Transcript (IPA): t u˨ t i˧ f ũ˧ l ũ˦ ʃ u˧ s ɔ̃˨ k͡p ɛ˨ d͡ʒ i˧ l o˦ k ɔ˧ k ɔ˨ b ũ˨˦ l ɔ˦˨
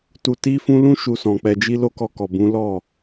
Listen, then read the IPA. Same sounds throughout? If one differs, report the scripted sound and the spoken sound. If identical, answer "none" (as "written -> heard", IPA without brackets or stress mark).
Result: none